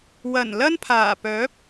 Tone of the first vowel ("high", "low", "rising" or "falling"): low